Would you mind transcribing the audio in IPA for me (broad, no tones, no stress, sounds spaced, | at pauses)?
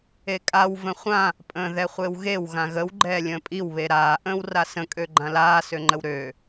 e kʼ a w v ə̃ χʷ ã | pʼ ə̃ː ð ɛ χʷ e w ɣ e w ɣ ã ɣ ə w ɡ͡ǃ ɛː lʲ ə̃ː pʼ i w β e ɾ aː ʔ ə̃ː w r a s ə̃ kʼ ø ɡ͡ǃ ã l aː s ø ŋ͡ǃ ə w ɾ øː